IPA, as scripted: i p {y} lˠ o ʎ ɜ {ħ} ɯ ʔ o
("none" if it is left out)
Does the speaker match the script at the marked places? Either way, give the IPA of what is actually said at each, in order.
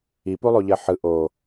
u, ħ

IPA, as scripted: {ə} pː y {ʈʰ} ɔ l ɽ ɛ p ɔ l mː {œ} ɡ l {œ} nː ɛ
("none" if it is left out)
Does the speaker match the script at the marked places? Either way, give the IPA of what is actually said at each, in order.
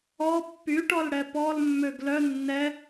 ɔ, ʈ, ø, œ

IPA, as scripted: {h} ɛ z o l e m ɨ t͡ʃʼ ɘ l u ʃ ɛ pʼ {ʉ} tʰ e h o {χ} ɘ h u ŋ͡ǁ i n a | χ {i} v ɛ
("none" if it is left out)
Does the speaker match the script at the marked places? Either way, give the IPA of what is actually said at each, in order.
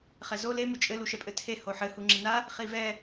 χ, ɘ, ħ, i

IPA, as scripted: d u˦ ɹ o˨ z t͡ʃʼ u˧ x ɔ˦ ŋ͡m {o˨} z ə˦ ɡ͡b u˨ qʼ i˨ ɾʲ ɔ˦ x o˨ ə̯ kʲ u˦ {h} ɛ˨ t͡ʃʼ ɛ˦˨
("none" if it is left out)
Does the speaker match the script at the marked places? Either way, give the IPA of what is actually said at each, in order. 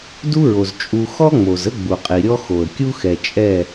o˨, x

